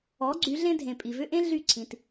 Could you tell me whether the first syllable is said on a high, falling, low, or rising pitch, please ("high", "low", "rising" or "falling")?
rising